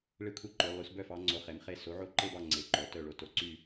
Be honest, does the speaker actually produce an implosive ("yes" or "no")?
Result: no